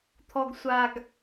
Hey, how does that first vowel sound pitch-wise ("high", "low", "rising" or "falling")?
low